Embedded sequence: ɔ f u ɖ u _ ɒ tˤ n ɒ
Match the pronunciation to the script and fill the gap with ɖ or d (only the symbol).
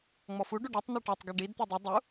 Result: ɖ